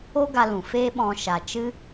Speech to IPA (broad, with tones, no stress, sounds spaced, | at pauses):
o˦ ɡ a˧ l ũ˨ f eː˦ ɓ ɔ̃˧ ʃ a˨ t͡ʃ ɨ˦